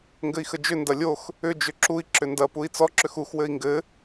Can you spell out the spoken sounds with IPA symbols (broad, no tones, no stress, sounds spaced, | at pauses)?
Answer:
ŋ ɡ ɘ i̯ x ə d͡ʒ ʏ n d ɐ lʲ o x | ʏ d͡ʒ ʏ ǁ u i̯ ǁ ʏ n d ɐ p u i̯ t͡s ɔ ǁ ʏ x u x w ɘ i̯ ŋ ɡ ɘ